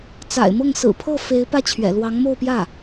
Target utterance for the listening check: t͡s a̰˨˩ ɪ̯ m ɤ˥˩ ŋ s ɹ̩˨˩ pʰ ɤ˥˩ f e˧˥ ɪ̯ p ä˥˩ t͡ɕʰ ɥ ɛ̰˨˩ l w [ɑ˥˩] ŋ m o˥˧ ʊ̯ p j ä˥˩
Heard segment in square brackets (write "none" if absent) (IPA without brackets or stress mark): ɑ˧˥